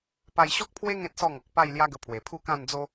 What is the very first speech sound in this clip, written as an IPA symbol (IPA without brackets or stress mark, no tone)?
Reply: p